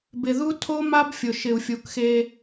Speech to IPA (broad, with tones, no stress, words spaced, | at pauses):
bɪ˨ðu˦tʰo˦ma˦b fʲʊ˨ʃɪ˨u̯fʲu˨kxe˦